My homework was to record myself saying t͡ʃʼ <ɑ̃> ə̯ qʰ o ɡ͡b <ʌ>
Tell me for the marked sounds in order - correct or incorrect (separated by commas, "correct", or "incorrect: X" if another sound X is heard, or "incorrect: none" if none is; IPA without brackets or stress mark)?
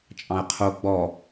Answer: correct, incorrect: ɔ